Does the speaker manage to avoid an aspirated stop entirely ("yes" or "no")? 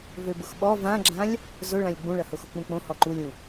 yes